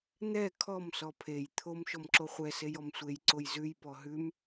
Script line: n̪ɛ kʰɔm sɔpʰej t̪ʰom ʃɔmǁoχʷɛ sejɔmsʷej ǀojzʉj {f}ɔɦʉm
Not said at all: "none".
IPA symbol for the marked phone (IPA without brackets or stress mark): p